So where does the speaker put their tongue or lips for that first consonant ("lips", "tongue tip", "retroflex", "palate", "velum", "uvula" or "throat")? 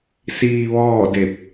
tongue tip